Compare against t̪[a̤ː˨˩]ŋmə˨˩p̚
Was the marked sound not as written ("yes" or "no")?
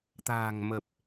no